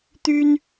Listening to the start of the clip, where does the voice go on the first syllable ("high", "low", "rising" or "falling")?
high